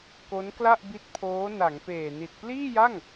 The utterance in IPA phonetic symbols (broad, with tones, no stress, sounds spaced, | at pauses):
k o˦˥ n k l a˥˩ ʔ b i˦˥ t̚ pʰ oː˦˥ n a˩˦ ŋ p eː˨˩ n i˨˩ t̚ p l iː˥˩ j a˥˩ ŋ